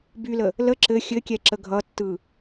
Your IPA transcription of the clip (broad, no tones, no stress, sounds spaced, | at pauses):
b y l ə | l ə ǁ ɘ xʲ ɘ kʲ ɛ ǁ ə ɡʱ ʌ tː ɯ